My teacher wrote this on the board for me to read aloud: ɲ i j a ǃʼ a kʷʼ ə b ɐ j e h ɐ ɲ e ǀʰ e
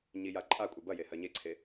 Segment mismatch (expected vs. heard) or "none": none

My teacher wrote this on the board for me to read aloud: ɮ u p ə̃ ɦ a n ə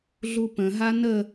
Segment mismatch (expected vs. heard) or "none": none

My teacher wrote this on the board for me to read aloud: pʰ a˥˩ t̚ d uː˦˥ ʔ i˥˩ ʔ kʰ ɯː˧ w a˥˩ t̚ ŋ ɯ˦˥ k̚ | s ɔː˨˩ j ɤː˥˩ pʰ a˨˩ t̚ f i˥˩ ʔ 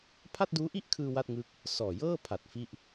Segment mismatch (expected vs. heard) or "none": none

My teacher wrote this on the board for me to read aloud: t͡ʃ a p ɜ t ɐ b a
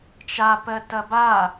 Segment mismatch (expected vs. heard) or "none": none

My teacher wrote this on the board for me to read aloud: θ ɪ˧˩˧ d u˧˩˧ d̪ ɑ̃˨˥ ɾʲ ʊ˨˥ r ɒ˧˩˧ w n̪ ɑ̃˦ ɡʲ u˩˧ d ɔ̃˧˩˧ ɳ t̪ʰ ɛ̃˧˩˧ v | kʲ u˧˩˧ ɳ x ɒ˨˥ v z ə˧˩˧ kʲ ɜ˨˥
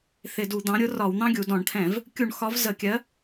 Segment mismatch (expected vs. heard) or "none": none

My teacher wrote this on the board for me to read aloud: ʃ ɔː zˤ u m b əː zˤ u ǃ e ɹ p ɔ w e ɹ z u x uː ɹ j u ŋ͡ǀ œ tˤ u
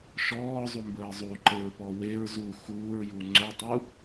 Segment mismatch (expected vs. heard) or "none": none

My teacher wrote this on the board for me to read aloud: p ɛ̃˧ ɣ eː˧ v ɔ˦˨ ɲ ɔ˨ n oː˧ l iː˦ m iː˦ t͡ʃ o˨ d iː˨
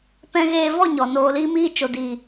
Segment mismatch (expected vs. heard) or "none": none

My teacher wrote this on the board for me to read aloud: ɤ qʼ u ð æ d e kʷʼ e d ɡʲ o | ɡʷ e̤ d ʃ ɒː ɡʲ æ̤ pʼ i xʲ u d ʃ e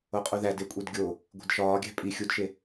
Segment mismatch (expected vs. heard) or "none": ɤ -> o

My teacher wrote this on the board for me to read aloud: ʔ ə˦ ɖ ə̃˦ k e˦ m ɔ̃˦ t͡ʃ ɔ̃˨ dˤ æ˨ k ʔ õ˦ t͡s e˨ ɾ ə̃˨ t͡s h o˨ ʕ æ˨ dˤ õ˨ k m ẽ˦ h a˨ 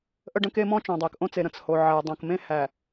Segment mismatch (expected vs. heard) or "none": a˨ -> æ˨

